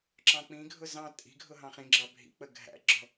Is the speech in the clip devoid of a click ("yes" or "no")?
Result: no